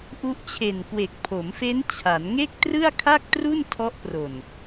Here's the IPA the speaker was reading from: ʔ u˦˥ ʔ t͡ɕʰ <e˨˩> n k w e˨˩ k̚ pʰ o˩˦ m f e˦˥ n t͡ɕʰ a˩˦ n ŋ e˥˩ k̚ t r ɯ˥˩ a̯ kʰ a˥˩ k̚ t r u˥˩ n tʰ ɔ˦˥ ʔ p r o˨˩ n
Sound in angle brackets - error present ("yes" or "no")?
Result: no